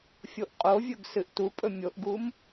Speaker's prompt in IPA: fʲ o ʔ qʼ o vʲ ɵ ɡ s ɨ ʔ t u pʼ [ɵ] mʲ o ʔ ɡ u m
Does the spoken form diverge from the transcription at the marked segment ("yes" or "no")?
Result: no